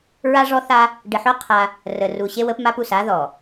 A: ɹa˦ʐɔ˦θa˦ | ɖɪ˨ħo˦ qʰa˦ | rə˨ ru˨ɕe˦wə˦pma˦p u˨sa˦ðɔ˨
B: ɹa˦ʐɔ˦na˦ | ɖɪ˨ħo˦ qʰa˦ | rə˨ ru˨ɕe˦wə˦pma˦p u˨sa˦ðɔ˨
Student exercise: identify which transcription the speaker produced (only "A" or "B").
A